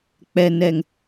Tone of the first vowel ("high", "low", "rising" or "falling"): low